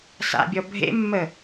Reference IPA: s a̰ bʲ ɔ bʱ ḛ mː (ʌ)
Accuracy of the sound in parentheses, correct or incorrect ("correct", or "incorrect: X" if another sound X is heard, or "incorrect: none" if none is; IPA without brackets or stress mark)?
incorrect: ə